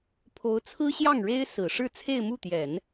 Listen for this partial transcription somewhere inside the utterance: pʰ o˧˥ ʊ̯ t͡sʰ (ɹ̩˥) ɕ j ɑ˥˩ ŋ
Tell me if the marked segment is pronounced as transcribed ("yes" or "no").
yes